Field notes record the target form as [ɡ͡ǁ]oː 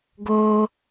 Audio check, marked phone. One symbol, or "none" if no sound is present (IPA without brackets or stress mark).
ɡ